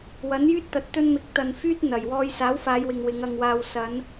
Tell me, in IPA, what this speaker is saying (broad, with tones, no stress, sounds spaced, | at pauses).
w ɐ˨˥ n j yː˥ t̚ t̪ ɐ˨ t̚ t̪ ɵ˥ n m ɪ˧ k̚ t̪ ɐ˧ n f yː˥ t̚ n̪ ɐ˨˩ j w ɔː˧ j s aː˨˥ w f aː˨˧ j w ɪ˨ ŋ w ɪ˨˧ ŋ ɐ˧ ŋ w aː˧ w s ɐ˨˧ n